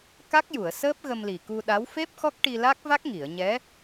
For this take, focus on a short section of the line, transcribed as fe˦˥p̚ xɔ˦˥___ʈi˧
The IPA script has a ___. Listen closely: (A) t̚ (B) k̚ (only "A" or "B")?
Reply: B